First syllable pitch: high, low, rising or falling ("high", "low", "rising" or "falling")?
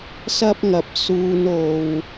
high